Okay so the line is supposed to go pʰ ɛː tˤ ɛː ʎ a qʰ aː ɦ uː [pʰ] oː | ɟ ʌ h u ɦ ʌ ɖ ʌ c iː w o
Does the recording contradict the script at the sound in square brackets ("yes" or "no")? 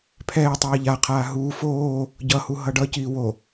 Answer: yes